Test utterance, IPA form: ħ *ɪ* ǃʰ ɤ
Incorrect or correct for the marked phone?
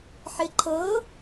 correct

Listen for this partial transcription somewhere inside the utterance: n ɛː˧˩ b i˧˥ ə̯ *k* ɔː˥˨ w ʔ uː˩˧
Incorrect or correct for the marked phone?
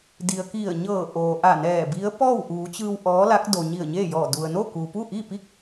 incorrect: p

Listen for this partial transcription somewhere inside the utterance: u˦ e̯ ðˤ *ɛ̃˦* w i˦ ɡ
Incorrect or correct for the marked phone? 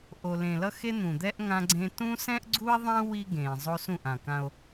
incorrect: ẽ˦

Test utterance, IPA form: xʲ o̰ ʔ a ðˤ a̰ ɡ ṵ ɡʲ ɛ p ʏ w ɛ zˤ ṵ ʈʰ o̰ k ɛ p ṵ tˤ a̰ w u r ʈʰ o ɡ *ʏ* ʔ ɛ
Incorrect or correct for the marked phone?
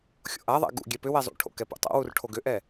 correct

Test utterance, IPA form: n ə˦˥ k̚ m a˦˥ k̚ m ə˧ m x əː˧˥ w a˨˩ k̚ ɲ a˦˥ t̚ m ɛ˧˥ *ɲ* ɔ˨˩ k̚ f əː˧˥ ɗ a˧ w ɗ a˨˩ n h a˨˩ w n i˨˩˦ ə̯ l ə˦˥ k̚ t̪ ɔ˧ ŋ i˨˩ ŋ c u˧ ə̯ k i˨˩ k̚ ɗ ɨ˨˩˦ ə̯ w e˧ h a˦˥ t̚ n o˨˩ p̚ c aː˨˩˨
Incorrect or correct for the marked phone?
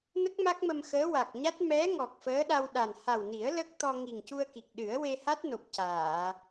incorrect: ŋ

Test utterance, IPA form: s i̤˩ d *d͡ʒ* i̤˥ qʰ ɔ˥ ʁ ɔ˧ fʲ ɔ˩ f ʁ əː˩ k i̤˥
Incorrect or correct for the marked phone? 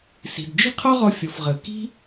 correct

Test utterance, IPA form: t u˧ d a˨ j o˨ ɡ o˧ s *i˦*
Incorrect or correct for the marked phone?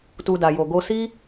correct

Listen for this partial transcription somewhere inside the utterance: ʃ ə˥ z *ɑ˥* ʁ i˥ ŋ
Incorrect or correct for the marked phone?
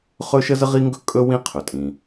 incorrect: ə˥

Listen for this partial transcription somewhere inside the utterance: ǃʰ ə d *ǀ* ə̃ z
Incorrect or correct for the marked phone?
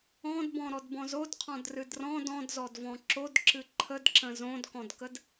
incorrect: ǁ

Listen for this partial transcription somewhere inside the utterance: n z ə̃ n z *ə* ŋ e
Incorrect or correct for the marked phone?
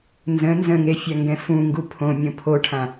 incorrect: ə̃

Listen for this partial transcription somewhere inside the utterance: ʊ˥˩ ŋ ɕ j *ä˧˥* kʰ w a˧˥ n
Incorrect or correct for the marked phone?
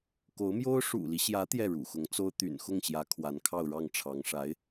correct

